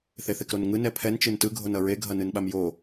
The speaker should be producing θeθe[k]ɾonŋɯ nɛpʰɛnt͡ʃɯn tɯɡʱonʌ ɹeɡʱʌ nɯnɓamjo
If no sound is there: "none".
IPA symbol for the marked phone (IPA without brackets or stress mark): k